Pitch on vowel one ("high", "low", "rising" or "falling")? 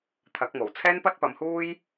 rising